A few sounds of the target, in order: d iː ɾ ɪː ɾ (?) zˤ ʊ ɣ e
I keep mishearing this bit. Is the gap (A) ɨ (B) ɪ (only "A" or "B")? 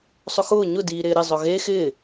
B